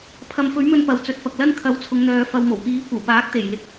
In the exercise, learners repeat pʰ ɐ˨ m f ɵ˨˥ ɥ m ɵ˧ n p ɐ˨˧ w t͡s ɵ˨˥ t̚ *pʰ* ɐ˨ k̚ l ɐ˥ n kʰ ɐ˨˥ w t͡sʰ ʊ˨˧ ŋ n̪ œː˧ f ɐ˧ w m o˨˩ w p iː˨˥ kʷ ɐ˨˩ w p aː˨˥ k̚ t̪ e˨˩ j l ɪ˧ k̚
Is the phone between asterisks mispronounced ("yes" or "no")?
yes